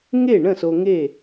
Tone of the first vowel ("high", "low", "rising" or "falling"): falling